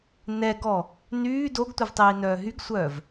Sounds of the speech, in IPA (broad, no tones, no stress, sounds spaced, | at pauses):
n ɛ ɡ ɔ | n yː d o ɡ tʷ ɪ v tˤ iː n œː ɦ y ɡ sʷ œː v